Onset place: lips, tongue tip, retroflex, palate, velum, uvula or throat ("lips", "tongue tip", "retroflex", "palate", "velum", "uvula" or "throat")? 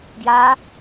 velum